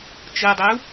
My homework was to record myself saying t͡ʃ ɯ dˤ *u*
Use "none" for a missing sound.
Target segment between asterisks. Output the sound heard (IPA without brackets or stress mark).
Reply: u